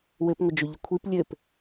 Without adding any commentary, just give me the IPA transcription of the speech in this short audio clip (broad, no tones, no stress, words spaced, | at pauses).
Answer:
wɘpŋʷɘd͡ʒoʎə kʷʰip lʲɘp